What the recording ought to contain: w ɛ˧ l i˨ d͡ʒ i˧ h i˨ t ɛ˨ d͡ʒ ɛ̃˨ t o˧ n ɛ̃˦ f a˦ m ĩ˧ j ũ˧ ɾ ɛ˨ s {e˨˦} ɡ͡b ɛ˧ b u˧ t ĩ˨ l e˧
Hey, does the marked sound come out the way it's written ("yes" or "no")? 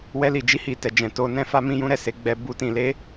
yes